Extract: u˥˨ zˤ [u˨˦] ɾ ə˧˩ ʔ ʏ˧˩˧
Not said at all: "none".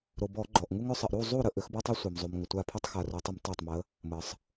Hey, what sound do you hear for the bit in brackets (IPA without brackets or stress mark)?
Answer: u˥˨